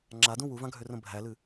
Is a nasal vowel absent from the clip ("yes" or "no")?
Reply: no